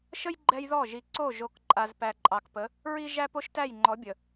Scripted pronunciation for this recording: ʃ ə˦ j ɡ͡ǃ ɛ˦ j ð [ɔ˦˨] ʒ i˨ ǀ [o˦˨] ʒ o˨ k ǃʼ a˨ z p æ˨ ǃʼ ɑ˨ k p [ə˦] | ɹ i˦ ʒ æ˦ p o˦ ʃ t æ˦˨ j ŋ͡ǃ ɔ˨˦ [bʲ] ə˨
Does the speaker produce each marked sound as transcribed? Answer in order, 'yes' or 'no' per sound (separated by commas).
yes, yes, no, yes